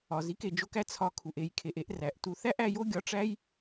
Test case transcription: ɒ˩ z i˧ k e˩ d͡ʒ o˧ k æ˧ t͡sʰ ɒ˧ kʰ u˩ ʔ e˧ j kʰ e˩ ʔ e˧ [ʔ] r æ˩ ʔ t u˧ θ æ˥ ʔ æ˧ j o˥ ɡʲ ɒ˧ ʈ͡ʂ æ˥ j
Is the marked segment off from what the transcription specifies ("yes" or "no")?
no